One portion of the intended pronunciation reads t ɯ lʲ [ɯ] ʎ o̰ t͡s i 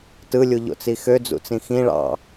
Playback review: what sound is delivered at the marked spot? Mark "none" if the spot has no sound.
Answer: u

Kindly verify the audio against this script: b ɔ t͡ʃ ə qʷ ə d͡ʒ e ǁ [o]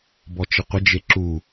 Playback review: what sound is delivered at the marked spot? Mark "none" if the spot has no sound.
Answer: u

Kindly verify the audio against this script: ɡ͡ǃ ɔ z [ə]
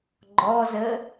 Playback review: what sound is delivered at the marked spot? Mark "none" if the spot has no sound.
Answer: ə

